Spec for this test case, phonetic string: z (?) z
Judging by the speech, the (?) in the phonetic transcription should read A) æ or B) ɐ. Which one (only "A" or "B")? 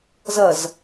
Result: B